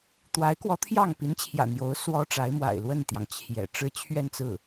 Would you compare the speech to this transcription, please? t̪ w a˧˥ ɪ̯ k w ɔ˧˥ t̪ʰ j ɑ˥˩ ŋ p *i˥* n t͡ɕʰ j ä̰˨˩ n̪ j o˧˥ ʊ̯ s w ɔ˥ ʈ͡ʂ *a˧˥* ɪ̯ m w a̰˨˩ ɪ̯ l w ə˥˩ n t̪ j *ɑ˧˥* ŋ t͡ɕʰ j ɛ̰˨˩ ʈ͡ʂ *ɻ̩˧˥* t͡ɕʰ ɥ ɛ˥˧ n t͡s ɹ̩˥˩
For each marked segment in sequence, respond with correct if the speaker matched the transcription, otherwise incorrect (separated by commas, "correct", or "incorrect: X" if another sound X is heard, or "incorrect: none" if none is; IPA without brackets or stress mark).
incorrect: i˧˥, correct, incorrect: ɑ˩, incorrect: ɻ̩˥